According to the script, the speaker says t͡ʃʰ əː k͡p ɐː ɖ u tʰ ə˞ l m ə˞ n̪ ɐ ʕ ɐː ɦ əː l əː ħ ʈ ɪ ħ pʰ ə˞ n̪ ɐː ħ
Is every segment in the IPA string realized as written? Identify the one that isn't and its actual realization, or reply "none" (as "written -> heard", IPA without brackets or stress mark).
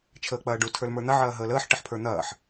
none